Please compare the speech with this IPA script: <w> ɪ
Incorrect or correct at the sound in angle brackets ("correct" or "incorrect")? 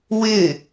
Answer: correct